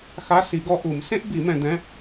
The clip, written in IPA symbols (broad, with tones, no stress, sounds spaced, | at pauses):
x a˧˥˧ s i˨˩˦ ɡ ɔ˧ ʔ u˨˩˦ m s ẽ˥ ʔ b i˨˩˦ m ɛ̃˧ d̪ ɛ̃˧˥˧